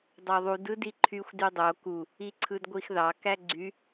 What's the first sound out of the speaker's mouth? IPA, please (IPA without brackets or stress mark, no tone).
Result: dˤ